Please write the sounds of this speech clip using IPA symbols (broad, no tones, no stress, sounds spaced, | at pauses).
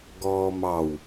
ɡ ɔː m ɑ w